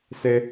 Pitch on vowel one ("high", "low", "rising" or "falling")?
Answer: high